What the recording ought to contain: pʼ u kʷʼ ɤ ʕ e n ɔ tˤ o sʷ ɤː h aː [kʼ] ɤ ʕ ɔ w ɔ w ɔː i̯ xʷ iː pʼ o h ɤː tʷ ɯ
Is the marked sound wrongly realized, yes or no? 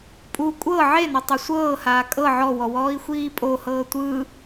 no